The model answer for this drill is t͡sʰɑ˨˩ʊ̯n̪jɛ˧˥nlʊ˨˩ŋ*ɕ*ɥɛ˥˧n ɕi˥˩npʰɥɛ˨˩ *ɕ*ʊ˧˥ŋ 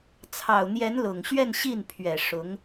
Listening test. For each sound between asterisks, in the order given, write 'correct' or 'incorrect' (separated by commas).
correct, incorrect